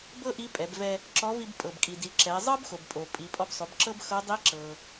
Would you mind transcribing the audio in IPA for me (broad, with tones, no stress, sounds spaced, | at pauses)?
b ɤ˥ ʔ i˧˥ pʼ ɛ˩˧ b v ɛ˧ | ǁ ɔ˧˥ v i˧ b pʼ ɤ˩ b kʼ i˩ d i˩˧ ǁ ɛ˩˧ zˤ ɤ˥ b x o˩ b pʼ o˩ pʼ i˩˧ pʼ ɔ˧ b sˤ o˩˧ b ǁ ɤ˥ b x ɤ˧˥ dˤ i˧˥ ǁ ɤ˩